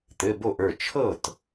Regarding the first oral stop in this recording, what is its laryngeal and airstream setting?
plain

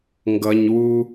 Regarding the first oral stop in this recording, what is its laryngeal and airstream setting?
plain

